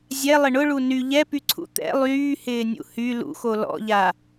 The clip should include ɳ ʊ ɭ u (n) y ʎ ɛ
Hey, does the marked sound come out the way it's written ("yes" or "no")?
yes